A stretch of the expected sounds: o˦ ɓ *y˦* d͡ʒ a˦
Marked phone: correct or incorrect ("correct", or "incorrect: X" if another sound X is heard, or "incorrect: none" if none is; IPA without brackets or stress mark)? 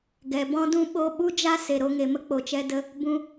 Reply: incorrect: u˦